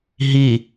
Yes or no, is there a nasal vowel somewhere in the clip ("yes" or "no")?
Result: no